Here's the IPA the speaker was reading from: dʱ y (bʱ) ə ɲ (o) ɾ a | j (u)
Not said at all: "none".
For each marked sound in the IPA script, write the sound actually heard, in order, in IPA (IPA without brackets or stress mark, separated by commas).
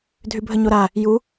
bʱ, o, u